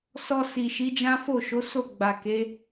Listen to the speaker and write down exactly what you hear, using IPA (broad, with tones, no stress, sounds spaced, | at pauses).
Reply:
s ɔ˧ s i˨ ʃ i˨˦ d͡ʒ ã˦ f o˦˨ ʃ o˨˦ s o˦˨ ɡ͡b a˨ k e˨˦